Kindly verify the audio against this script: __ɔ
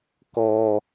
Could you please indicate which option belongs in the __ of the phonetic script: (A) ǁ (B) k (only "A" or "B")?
B